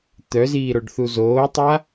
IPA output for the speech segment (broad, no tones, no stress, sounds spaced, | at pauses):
t̪ œ z iː ɾ o ɖ θ u z oː tˤ a